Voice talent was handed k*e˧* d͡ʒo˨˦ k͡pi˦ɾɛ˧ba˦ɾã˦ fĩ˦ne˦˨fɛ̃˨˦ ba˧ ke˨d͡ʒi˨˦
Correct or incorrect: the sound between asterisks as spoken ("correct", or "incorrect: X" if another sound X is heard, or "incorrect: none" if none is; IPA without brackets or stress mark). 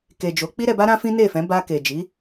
incorrect: e˨